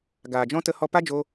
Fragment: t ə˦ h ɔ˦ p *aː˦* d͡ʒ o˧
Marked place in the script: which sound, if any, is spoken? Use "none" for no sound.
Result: a˦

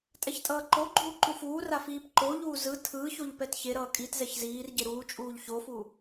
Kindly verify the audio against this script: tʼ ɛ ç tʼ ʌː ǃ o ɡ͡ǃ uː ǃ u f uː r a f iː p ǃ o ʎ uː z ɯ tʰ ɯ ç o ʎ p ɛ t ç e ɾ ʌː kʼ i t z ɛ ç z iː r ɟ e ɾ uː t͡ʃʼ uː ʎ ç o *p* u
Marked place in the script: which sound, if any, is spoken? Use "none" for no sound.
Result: f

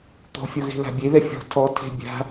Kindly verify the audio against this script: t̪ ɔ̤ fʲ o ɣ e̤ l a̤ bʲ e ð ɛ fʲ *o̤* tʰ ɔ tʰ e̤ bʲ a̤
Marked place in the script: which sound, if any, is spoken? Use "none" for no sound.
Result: ɔ̤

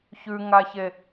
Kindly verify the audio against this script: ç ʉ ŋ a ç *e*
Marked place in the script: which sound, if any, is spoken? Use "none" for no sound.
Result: e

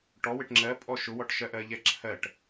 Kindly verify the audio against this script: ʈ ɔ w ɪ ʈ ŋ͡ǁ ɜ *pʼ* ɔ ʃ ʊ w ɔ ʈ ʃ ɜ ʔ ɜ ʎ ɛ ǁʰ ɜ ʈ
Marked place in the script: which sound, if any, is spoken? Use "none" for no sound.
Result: pʼ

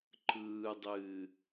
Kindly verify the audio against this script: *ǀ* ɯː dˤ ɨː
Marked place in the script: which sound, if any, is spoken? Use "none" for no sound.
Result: ǃ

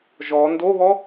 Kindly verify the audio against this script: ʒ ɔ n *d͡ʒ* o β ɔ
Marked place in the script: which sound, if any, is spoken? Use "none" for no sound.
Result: d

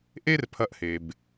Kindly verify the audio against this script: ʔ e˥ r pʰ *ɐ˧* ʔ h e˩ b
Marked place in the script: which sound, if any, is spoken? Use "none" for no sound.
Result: ɐ˧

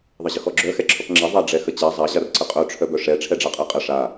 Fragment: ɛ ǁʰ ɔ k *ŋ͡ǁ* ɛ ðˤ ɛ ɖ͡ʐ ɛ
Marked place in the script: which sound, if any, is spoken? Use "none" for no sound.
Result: ŋ͡ǁ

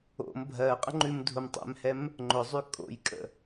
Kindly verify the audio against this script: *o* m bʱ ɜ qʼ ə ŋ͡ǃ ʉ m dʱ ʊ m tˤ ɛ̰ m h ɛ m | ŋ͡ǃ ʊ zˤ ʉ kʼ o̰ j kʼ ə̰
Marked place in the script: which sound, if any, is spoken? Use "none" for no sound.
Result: o̰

